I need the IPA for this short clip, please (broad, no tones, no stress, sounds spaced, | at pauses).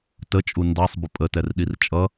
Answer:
t ə t͡ʃʼ u n d ɑ sˤ b ʊ pʼ ə t ɛ r ɗ i r t͡ʃʼ ʌ